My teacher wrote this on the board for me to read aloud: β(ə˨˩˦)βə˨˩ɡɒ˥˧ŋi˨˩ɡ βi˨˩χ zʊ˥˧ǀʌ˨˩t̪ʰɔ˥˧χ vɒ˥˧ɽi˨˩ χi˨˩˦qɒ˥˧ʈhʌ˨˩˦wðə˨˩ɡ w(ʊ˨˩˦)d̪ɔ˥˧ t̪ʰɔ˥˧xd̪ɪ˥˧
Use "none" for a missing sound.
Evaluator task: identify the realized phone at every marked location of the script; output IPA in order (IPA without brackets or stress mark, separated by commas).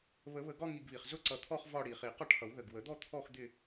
ə˨˩˦, ə˨˩˦